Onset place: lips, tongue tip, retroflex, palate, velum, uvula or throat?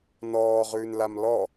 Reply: tongue tip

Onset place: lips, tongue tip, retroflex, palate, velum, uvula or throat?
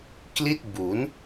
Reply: velum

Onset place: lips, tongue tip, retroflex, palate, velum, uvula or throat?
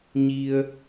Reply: palate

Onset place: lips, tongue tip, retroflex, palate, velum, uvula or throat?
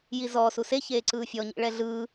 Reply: palate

